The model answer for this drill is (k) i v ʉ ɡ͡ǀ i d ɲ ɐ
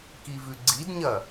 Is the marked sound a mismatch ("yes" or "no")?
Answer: no